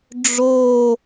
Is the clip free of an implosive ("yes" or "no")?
yes